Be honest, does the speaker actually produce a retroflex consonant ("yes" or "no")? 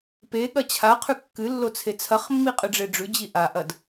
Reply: yes